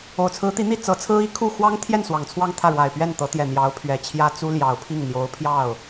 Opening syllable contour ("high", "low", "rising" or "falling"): low